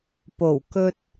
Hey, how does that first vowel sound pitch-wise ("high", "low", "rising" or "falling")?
low